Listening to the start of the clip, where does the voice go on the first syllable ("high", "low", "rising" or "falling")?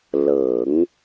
low